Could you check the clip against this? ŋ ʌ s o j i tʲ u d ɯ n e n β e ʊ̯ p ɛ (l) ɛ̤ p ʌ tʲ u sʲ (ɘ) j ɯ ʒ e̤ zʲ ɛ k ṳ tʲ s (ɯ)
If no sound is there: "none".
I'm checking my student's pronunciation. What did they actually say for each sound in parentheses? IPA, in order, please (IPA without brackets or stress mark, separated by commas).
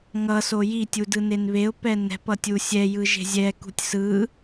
n, ɛ, ɯ